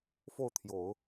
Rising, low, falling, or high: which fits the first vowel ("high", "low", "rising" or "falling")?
falling